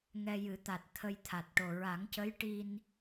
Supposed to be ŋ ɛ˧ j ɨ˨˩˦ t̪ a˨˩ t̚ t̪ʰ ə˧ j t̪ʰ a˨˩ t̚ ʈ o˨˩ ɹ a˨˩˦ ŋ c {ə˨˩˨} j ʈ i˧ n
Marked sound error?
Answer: yes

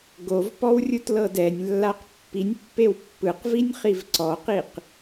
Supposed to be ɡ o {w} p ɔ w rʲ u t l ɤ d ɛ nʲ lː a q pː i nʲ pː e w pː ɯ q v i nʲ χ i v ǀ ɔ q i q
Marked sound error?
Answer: yes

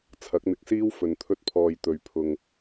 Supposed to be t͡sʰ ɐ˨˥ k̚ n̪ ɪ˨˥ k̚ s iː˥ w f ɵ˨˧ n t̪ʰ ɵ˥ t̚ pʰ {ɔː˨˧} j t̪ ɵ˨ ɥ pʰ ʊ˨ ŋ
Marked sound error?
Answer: yes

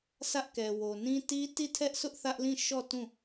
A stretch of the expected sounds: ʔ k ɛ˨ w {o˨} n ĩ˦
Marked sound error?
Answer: no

